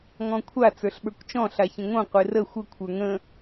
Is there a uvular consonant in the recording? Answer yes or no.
yes